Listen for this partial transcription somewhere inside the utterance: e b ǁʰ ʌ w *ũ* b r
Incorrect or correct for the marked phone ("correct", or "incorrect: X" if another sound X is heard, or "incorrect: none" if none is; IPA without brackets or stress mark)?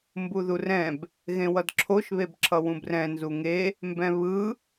correct